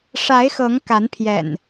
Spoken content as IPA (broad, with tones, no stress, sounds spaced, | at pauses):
ʂ a˨˦ ɪ̯ x ɤ˨˦ ŋ k a˨˦ n pʰ j ɛ̰˨˩ n